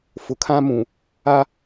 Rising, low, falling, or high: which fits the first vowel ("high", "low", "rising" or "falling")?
low